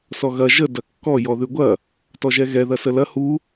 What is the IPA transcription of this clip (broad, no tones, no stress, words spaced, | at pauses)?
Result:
sɔɣɐ ʒə dɐkːɔ jɔðʉɡʷɐ | tɔʒɛɣɛ ðɐsəlɐ hu